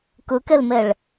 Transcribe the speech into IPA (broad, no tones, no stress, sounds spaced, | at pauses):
k ɯ k e l m e ɭ